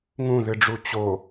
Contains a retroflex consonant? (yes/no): yes